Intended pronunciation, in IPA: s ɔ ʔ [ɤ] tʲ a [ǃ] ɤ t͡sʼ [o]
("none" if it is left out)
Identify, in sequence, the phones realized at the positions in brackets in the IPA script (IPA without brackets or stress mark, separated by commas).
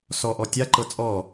ɔ, ǃ, ɔ